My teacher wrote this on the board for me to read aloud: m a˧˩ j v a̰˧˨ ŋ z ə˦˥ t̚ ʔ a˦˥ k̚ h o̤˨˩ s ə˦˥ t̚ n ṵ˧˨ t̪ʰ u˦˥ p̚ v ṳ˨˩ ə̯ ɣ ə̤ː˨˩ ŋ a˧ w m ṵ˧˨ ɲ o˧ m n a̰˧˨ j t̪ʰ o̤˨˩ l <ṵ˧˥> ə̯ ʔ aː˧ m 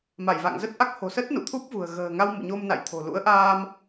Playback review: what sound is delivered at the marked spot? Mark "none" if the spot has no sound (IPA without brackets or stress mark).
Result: ṵ˧˥